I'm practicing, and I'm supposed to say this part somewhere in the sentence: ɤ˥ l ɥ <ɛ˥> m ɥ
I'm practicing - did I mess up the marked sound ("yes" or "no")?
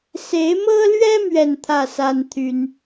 no